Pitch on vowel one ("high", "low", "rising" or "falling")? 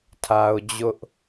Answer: high